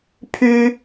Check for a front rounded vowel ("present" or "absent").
present